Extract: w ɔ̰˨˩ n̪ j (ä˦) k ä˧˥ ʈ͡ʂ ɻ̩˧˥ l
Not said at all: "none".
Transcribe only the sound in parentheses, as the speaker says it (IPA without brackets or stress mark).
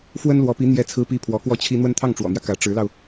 ä˦